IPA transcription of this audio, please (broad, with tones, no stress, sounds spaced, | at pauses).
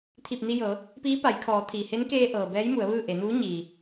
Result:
t̪ʰ i˧˩ p̚ n i˧ j ɤː˩˧ | p iː˧˥ p a˩˧ j kʰ ɔː˩˧ t̪ʰ iː˩ h e˧˥ n k eː˧ ʔ ɤː˩ b ɛː˧˥ j m u˩˧ ə̯ ʋ ɯː˥˨ ʔ e˩˧ n uː˧˥ ɲ iː˩